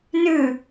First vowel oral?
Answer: yes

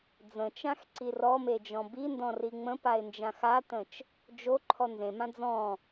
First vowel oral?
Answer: no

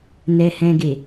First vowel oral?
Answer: yes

